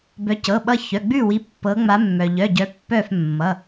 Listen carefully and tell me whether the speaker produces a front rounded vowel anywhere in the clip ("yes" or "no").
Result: yes